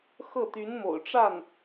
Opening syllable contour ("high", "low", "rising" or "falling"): falling